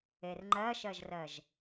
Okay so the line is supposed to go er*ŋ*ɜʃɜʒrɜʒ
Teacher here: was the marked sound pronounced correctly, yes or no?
no